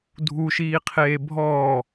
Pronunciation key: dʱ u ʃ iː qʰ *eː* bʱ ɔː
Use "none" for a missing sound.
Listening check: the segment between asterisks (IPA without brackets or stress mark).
eː